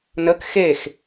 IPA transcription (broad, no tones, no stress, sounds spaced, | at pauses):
n ə k x e x